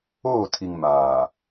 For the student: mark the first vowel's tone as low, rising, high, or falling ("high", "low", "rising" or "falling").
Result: falling